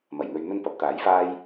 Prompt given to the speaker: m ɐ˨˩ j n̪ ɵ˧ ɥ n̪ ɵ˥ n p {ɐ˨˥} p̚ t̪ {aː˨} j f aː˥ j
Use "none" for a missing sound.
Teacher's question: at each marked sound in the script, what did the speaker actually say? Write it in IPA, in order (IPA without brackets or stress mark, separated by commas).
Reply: ɐ˨˥, aː˨˥